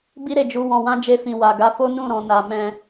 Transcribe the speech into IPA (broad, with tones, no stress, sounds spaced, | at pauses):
b i˦ ɾ e˦˨ d͡ʒ u˨˦ w ɔ̃˧ w ã˦ d͡ʒ e˦˨ f ĩ˨ w a˨ ɡ a˨˦ f o˦ n ũ˦˨ ɾ ɔ̃˨ n a˨ m ɛ̃˧